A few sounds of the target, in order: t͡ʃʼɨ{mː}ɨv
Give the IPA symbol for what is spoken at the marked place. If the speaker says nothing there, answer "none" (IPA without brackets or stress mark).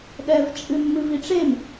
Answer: mː